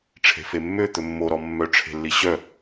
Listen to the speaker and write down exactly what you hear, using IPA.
ʈ͡ʂʰ e̤ f e mː ø t̪ ɵ mː o ɾ ɔ mː œ ʈ͡ʂʰ e̤ lː i ɕ œ

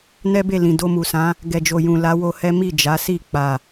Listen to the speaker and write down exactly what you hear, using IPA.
n ɛ˦ b e˦˨ l ĩ˨ d o˧ m u˨ s ã˨˦ | ɡ ɛ˨ d͡ʒ o˨ j ũ˨ l a˨˦ w o˧ h ɛ˦ m i˦˨ d͡ʒ a˨˦ s i˦˨ k͡p a˨

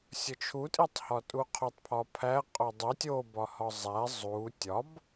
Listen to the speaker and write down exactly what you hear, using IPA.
sʲ o t͡ʃʰ u tʼ i tˤ h ɒ tʼ u qʰ o tˤ pʰ ɒ pʰ æ qʼ o dˤ i tʲ o b ɒ h ɒ zˤ æ zˤ u tʲ ɒ b

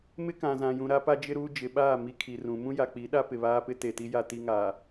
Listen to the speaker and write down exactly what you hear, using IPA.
m ɪ˦ k ã˨ z ã˨ j ũ˨ ɾ a˦ p a˦ d͡ʒ ɪ˦ ɾ uː˦ d͡ʒ ɪ˨ ɓ aː˦˨ m i˦ kʰ i˨ r ũ˨˦ m ũ˦ j a˨ k͡p i˨˦ ɗ a˦ p ɪ˨ β aː˦ p ɪ˦ t e˨ t i˦ j a˦ t i˦ ŋ aː˨

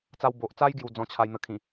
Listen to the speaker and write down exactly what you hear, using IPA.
t͡s a˧ w b o˨ ʔ t͡s a˦ j ɡ j u˨˩ d͡z ɔ̃˧ t͡ɕʰ a˧ j n̪ ə˨˩ kʰ ĩ˨˩

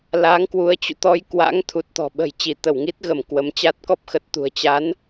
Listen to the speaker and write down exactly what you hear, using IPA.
l aː˨˦ ŋ k w u˨˦ ə̯ t͡ɕ ṵ˧˨ t̪ ɔ˧ j k w a̰˧˥ ŋ t̪ʰ u˨˩ t̚ t̪ ɔ̤˨˩ ɓ ə̤˨˩ j t͡ɕ i˧˩ t̪ ə˧˩ w ŋ i˦˥ t̚ ɣ ə˧˩ m k w ə˨˦ m t͡ɕ a˦˥ t̚ k ɔ˦˥ p̚ x ə˨˩ t̚ t̪ ṳ˨˩ ə̯ t͡ɕ a˨˦ n

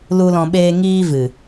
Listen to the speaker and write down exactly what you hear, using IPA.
l u˧ l ɔ̃˧ ɓ eː˦ ŋ iː˦ v ɨ˨

